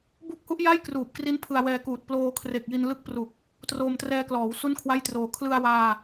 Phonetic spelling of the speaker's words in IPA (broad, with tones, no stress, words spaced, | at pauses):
bu˦˥k̚hu˦˥ʔja˥˩j kruː˨˩p̚kri˦˥n pʰɯ˧a̯wɛː˧kuː˨˩t̚ ploː˧kʰre˨˩k̚ji˧n lɯ˦˥k̚pru˨˩k̚ | troː˧mtrɛː˧klɔː˩˦w su˥˩nkʰwa˥˩jtroː˧ kʰlɯ˧a̯waː˧